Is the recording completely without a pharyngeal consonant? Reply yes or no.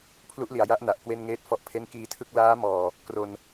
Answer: yes